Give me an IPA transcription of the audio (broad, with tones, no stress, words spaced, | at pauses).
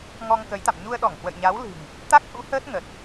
ŋɔ˧ŋkə˨˦jt̪a̰˧˨m ɲu˧ə̯ɗɔ˧˩ŋhwə̰˧˨jɲa˨˦w lɨ̤˨˩ŋ | t̪a˦˥k̚hṵ˧˥ həː˦˥t̚ŋə˨˩t̚